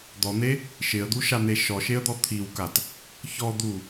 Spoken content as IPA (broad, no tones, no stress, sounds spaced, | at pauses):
d̪ ɔ n̪ e | ʃ ɪ ə̯ d̪ u ʃ a n̪ e ʃ ɔ ʃ e ə̯ d̪ ɔ t̪ʰ i w k a t | ç ɔ d̪ u